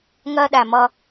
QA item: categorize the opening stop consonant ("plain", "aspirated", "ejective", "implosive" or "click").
implosive